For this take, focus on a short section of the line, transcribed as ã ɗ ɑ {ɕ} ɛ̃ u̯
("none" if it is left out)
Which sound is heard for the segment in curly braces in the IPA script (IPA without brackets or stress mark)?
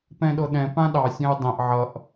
sʲ